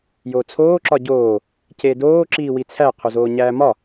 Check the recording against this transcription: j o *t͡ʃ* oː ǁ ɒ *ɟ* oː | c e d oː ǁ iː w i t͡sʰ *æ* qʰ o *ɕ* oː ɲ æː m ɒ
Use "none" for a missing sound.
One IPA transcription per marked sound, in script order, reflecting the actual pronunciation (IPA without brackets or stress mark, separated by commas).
t͡sʰ, ɟ, æ, z